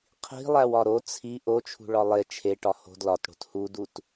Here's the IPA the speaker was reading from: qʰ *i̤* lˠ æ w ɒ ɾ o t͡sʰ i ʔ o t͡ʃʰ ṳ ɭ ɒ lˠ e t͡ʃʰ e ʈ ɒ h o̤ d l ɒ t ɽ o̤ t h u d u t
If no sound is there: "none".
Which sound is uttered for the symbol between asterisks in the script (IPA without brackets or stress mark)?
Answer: i̤